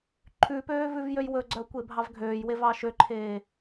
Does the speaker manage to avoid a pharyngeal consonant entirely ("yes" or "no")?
yes